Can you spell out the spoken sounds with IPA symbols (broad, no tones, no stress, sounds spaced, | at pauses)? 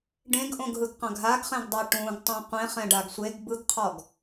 ɖ ẽ ɡ ʔ õ ɡ ɦ ɯ ɡ q ã ɡ ɦ a ɡ χ ɛ̃ ɡ dˤ a ʈ ũ ɡ tˤ ũ qʷ ẽ χ ɛ̃ ɖ a ɡ sʷ e ɡ b ɯ ɡ qʰ ɔ ɡ